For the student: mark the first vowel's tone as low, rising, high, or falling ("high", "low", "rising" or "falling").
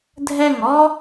falling